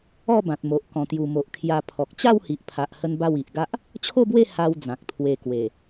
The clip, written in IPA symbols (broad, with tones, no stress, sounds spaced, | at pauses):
ɔ˥˧ b ã˨ t̚ m o˨ ʔ k ɔ̃˨˩ t̪ j u˨˩ m o˨ ʔ kʰ j a˧ pʰ ɔ˨ k̚ t͡ɕ a˥˧ w h i˨ ʔ pʰ a˨ ʔ h ə˦ n b a˥˧ w i˨ ʔ ɡ a˦ ʔ | t͡ɕʰ o˥˧ b w e˥˧ h a˧ w d͡z ã˨ k̚ t̪ʰ w e˧ k w e˨˩